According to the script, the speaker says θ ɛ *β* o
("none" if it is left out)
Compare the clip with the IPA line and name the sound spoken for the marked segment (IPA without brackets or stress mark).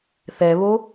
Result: β